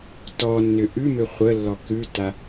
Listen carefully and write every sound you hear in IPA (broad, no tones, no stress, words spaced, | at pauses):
tɔnːʏ ʔʉmʏ χʷəlːɔ kʉta